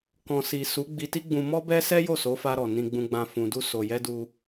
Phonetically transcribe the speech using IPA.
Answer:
k ɔ̃˨ s i˨ s u˨˦ ɡ͡b i˧ t i˦ ɡ͡b ũ˧ m ɔ˦ b ɛ˦ s ɛ˦ j o˦˨ s o˨˦ f a˧ ɾ ɔ˨ n ĩ˨ ɡ͡b ũ˨ ɡ͡b ã˨ f ũ˨ d u˧ s o˨ j ɛ˧ d u˧

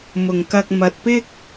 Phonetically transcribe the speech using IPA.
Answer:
m ʊ˨ ŋ k ɐ˧ k̚ m ɐ˧ t̚ p ɪ˥ k̚

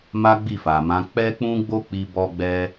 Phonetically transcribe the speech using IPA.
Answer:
m a˦ ɡ͡b i˦˨ f a˨ m ã˨˦ k͡p ɛ˦ k͡p ũ˦ ɡ͡b o˦ k͡p i˧ b ɔ˧ ɡ͡b ɛ˧

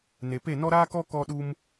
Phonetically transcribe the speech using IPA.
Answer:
n e˨ p e˦˨ n ɔ˦ ɾ aː˦ k ɔ˦ k ɔ˧ ɗ u˧ m

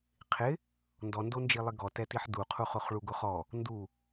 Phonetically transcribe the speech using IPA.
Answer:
qʰ ɪ | n d ɔ n d o n d͡ʒ i lˠ ɪ ɡ ɔ t ɛ t i ħ d u qʰ u χ ʊ χ ɭ u ɡ ʊ χ ɔ | n d u

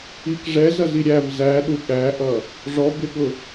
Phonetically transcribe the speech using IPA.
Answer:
i k ʐ ɛ z ʌ z i ɾʲ æ v z æ ɗ u ɠ æ ʔ ʌ | ʐ ɔ b ɪ ɠ ʊ

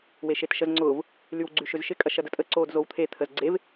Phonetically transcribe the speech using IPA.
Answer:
w e ʃ e t ʃ ə z ŋ͡ǀ ʊː v | l y w ɡ͡ǀ y ʃ ʏ z ʃ ɪ kʼ ɐ ʃ ɐ d ə tʼ ə ǀ oː d z o w t̪ʰ e t̪ʰ ə z ɡ͡ǀ e v

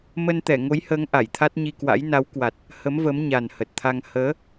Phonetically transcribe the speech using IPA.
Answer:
m ə˧ n t̪ ɛ˧˩ ŋ o˨˦ j h əː˨˦ ŋ ʔ a˧˩ j t̪ʰ a˦˥ t̚ ɲ i˧ k w a̰˧˥ j n a˨˦ w k w a˨˩ t̚ | h ə˨˦ m v ə˨˦ m ɲ a˨˩ n h ə˨˩ t̚ t̪ʰ a˧ ŋ h əː˨˦

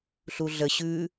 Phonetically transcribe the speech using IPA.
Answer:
ɬ u ɮ ə ɕ ʉ

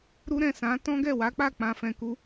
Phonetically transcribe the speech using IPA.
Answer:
ɾ u˦ ɾ ɛ̃˦˨ s ã˨˦ t ɔ̃˦ ɡ ɛ˦˨ w a˨˦ k͡p a˦˨ k͡p ã˧ f ɛ̃˧ k u˦

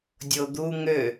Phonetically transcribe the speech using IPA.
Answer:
dʲ o d̪ u ŋ ø

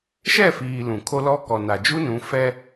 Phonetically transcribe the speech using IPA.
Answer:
ʃ ɛ˦˨ f iː˨ l ũ˨ kʰ o˦ l ɔ˦ k ɔ˨ n a˨ d͡ʒ u˦ n ũ˨˦ f ɛ˦

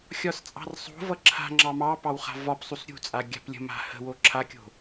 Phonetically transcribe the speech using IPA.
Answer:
xʲ ɒ s t͡sʼ ɑ̤ r sˤ o̤ v ʌ ǁʰ a̤ ŋ͡ǁ ɑ m ɑ p ɑ w χ a̤ v ɒ p sˤ u s ɾʲ ṳ t͡sʼ a ɡʲ a̤ p lʲ ə̤ m a̤ h ə̤ w o ǁʰ a kʲ o̤

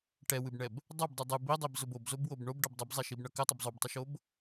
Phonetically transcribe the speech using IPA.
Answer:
ʈ ɛ w ɨ b ɳ ɛ b | dˤ ʌ b dˤ ɨ dˤ ɨ b i dˤ i b z ʊ b o b z o b w o b ɳ o b ɖ ʌ b dˤ ɨ b zˤ ɛ ʃ i b ɳ ʌ k ɘ tˤ ʌ b zˤ o b tˤ ɨ ʃ o b

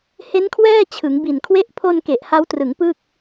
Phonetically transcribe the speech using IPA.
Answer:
h e˦˥ n kʰ w ɛː˥˩ t͡ɕʰ ɯ˩˦ ŋ b i˨˩ n kʰ w e˥˩ ʔ pʰ o˧ n k e˨˩ ʔ h a˦˥ w t r ɯ˩˦ ŋ p ɯ˥˩ k̚

